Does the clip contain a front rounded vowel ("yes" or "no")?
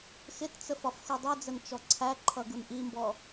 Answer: no